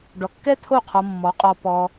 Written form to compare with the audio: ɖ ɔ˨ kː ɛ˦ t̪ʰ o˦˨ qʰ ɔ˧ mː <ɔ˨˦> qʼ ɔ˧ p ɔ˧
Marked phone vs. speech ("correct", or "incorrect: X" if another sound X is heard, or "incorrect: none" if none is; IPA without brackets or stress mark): correct